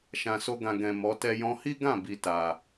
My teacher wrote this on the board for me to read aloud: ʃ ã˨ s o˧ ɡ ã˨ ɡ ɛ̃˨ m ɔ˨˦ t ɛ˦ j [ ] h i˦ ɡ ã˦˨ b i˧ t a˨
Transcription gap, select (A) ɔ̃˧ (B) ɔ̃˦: A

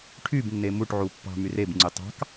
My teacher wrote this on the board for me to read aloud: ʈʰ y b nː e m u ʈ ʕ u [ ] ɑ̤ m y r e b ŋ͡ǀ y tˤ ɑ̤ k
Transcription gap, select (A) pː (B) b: A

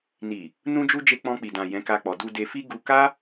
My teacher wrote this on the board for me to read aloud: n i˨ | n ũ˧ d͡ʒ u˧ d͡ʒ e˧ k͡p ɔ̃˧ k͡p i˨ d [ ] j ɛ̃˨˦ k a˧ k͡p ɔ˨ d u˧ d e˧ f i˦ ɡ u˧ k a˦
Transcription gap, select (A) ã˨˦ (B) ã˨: B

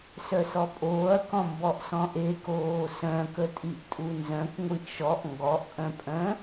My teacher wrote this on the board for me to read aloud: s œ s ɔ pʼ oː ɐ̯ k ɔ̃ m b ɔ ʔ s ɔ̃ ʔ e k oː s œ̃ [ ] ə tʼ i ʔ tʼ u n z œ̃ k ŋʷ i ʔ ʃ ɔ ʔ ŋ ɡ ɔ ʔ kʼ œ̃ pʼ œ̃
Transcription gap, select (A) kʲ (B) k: B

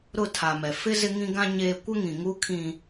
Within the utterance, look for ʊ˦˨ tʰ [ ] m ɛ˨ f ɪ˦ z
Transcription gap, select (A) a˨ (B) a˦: A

